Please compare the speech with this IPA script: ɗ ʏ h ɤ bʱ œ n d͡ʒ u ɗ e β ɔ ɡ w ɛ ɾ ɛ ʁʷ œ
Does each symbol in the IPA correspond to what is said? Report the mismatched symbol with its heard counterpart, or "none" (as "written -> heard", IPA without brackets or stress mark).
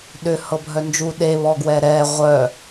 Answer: none